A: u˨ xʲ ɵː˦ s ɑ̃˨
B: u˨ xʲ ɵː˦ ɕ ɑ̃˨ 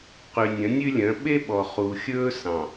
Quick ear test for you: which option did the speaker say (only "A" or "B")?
A